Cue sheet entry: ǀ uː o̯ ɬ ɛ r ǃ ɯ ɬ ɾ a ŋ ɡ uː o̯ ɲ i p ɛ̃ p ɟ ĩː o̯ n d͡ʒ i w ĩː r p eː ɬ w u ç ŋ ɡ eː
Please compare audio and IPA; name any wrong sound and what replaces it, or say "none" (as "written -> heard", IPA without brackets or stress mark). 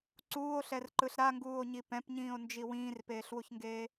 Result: ɟ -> ɲ